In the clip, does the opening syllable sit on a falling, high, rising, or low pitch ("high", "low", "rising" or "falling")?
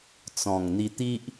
low